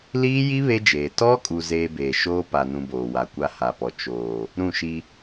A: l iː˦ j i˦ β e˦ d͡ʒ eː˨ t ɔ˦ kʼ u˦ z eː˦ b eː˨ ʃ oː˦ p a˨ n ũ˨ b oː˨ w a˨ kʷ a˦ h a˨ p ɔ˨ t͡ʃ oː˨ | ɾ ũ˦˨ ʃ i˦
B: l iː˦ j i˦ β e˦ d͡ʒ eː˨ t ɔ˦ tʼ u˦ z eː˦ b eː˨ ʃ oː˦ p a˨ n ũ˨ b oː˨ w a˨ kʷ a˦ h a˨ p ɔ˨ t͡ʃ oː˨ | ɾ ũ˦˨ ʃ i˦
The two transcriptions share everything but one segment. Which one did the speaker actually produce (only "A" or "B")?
A